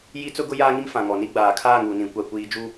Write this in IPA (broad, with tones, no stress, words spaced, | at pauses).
ji˦ t͡sʊ˦ɡʊ˦ jaː˦ŋi˦m fã˨ŋɔ˨ni˦ ɡ͡baː˨kʰaː˦˨ŋuː˨nĩ˨ kʷa˦kʷiː˦ d͡ʒu˦